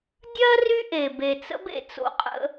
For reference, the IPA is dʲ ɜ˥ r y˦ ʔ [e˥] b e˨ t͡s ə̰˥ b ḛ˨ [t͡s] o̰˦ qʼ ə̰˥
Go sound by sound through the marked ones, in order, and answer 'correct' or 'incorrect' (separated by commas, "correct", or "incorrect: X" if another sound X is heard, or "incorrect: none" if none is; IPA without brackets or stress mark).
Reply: incorrect: e˩, correct